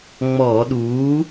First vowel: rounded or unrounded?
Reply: rounded